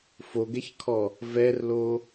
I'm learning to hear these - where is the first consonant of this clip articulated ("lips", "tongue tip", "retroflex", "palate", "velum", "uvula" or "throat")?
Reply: lips